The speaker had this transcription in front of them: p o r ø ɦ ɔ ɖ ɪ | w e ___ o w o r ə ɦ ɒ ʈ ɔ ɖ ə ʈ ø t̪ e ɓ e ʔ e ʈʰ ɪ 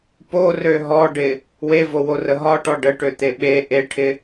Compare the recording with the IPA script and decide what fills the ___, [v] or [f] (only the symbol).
v